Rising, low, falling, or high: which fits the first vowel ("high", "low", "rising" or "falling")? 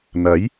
rising